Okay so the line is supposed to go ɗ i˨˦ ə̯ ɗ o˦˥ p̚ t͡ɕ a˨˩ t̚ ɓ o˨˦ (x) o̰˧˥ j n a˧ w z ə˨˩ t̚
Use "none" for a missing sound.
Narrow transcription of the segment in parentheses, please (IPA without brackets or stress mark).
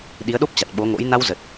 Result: ŋ